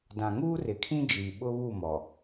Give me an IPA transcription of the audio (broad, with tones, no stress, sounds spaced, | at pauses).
d ã˨ ŋ uː˦ r ɪ˨ kʰ ĩ˦ d͡ʒ iː˨ ɓ ʊ˦ β u˦˨ m ɔ˨